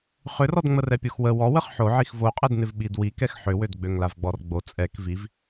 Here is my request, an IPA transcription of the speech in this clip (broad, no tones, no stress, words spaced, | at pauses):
χʏrɔdŋ͡mə rɛpʲoxwə wɔwəχ ħoʕix voqʼɛdnɪv ɓidwi kɛxħʏwød ɡ͡bøŋlavɡ͡bɔrɡ͡bo t͡sʼɛk viv